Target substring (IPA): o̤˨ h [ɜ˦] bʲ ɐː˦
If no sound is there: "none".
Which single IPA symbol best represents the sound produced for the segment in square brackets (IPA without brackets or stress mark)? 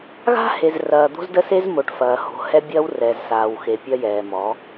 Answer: ɛ˦